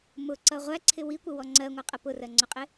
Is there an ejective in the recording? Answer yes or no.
yes